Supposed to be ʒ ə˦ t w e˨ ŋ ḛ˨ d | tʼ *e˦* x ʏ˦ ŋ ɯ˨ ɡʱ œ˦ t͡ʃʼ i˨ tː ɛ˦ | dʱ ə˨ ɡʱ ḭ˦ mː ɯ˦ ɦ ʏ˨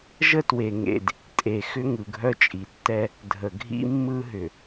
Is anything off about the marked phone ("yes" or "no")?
yes